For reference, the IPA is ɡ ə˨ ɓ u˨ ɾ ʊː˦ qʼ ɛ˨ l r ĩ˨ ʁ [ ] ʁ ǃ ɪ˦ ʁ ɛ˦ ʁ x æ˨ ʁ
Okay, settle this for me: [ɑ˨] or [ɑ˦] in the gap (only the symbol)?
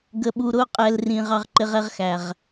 ɑ˦